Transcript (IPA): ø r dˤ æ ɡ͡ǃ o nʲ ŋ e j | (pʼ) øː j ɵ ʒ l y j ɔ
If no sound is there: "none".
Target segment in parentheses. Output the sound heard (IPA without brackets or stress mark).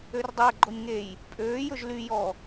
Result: pʼ